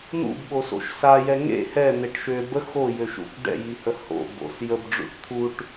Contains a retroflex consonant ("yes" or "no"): yes